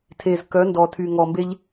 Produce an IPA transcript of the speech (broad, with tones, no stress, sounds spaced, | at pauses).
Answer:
tʰ e˨ z k œ˨˦ n d ɔ˨ tʰ y˨ ŋ ɔ˨ m b e˦ ʎ